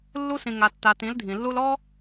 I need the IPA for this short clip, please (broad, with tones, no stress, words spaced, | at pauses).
lːu˧sĩ˨ ŋa˨tːa˨ tĩ˨˦ldʱĩ˨lːu˦l ɔ˦